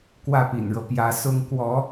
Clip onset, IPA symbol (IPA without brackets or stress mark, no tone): k